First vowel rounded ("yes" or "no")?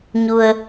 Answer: yes